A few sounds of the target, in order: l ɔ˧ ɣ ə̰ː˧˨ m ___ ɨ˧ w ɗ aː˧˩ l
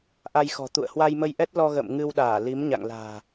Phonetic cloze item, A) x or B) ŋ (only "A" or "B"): B